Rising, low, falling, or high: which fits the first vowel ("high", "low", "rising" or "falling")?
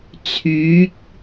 rising